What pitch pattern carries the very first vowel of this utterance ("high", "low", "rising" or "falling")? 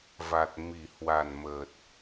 low